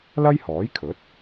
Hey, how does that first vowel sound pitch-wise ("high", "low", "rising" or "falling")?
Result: high